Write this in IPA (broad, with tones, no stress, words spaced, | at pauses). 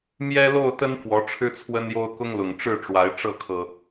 mjɛ˦lo˥˨ʊ̯t̪ə˦n fwɔ˨˦ʈ͡ʂʰɻ̩˦t͡sʰwə˦njo˦ʊ̯ kʊ˦ŋlʊ˨˩ŋ ʈ͡ʂɻ̩˥˨ʈ͡ʂwa˨˦ɪ̯ ʈ͡ʂɤ˥˨kʰɤ˨˩